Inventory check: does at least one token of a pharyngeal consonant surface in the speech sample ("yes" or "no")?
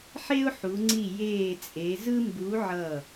yes